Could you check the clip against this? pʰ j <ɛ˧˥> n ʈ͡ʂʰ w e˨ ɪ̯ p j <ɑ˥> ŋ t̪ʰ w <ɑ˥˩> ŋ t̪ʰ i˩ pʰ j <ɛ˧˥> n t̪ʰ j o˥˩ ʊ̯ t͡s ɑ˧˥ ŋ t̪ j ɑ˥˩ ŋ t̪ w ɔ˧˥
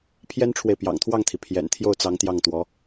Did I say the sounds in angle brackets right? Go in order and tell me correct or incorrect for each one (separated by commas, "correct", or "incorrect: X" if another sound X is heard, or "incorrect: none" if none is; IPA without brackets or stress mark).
incorrect: ɛ˥, incorrect: ɑ̰˨˩, correct, incorrect: ɛ̰˨˩